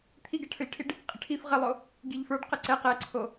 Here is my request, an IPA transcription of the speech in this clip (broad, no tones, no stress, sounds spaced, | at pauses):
t̪ʰ i ɡ ɛ ʈʰ ə˞ ʎ ʈʰ i ɖ | qʼ ə ʈʰ i f ʁ ə lˠ o | ɡ i ʎ f ə˞ ɖ q ə ǀ ɛ q ɛ ǀʰ o